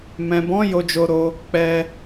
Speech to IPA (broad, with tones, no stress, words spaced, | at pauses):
mɛ̃˨bɔ̃˨˦ jo˦d͡ʒo˦ɾo˦ | k͡pɛ˦